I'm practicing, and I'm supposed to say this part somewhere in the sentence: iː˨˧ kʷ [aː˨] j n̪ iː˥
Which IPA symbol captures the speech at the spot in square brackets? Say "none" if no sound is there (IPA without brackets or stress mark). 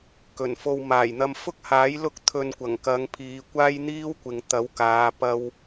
aː˥